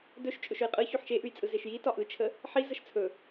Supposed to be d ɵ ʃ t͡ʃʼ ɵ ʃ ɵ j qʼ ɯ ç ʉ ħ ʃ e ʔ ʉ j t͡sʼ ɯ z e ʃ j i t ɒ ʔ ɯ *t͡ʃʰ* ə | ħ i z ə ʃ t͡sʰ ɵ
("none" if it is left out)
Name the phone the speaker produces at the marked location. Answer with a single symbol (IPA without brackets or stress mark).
t͡ʃʰ